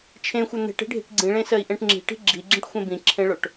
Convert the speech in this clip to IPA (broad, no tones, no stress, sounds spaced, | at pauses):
t͡ʃʰ ẽ xʷ œ n̪ e̤ ʈ e̤ ɖʱ i̤ ʈ ɡ͡ǀ ĩ ɭ ẽ s ɜ i̯ ʔ ẽ ʈ ŋ͡ǁ i̤ ʈ i̤ ɡ͡ǁ i ɡ͡ǁ ĩ ʈ xʷ ẽ b ĩ ǁʰ ẽ ɭ o ʈ